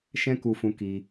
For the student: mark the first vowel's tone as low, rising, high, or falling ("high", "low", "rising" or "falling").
high